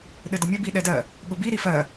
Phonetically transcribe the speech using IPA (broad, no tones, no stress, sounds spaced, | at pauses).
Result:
ɗ ɘ d ə mʲ ɘ b i ɗ ɛ d ɜ | ɠ ʊ b i ɾ i f ɜ